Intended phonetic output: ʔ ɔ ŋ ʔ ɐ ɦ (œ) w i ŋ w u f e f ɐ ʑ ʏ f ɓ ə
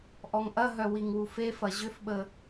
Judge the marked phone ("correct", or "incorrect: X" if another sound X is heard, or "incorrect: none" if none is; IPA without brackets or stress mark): correct